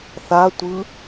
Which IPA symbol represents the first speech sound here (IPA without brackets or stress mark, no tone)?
θ